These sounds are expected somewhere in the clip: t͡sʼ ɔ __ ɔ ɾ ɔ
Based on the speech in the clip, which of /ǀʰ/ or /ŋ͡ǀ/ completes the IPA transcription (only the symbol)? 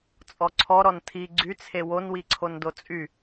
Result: ǀʰ